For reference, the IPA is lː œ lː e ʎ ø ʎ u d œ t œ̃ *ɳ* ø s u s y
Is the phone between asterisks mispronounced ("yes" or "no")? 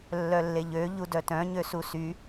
yes